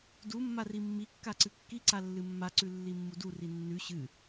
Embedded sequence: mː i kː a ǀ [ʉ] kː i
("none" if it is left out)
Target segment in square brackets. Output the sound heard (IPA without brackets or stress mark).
ɨ